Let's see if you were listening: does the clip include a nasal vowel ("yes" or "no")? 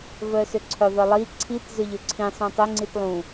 yes